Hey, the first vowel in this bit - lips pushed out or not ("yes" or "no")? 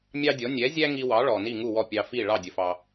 no